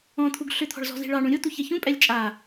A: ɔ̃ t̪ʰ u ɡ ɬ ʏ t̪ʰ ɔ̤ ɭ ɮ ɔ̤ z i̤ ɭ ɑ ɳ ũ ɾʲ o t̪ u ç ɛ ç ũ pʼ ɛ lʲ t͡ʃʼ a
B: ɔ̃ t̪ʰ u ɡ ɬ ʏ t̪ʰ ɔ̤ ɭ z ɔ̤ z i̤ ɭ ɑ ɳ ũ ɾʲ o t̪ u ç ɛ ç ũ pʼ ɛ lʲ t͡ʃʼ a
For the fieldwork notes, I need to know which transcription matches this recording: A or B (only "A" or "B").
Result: B